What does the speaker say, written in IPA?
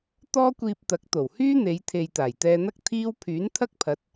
t̪ ɔː˥ kʷ iː˧ p̚ t̪ ɐ˨˥ k̚ t̪ o˨˩ w h yː˥ n̪ e˨˧ j t̪ʰ e˨ j t̪ aː˨˩ j t̪ ɛː˧ n̪ ɐ˥ k̚ t̪ʰ iː˥ w pʰ yː˨˥ n t̪ʰ ɐ˥ k̚ pʰ ɐ˨˥ t̚

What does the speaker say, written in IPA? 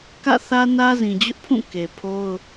k ä̰˦˨ θ ä˦ n ä˦ z ĩ˨ d͡ʑ ʊ˦ ʔ pʰ ũ˦˨ k e˨ pʰ o˦ ʊ̯

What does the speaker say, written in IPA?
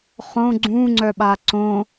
χ õ ɡ͡ǀ ũ ŋ͡ǀ œ ɓ a ǀ õ

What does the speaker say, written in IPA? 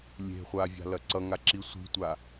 lʲ e̤ χʷ a vʲ a̤ l ɐ ǀ ʌ ŋ a ǁ i sʷ i̤ tʷ a

